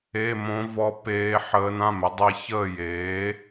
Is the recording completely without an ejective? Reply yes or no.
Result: yes